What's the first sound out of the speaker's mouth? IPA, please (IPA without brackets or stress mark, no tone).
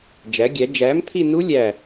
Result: d͡ʒ